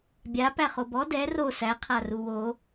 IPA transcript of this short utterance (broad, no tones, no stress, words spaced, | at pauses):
bʲa pæχobɔ dɛ ro sæ qʰaruwo